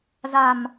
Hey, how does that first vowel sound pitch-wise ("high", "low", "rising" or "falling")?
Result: low